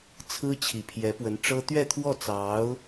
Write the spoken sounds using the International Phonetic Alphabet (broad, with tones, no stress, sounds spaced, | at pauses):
t͡sʰ ɹ̩˥ t͡ɕʰ i˨˩ pʰ j ɛ˧˥ p w ə˧˥ n ʈ͡ʂ ɤ˥ t̪ ɥ ɛ˥˧ t̪ʰ w ɔ˥˩ t͡s ɑ˧˥ ʊ̯